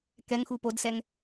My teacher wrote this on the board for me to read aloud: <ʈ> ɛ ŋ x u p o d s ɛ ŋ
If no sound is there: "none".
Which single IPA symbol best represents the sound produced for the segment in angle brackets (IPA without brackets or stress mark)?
k